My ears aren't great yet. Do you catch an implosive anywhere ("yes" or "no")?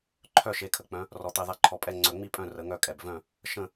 no